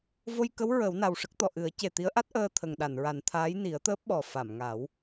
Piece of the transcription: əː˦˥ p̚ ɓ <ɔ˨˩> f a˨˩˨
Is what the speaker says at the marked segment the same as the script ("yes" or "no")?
yes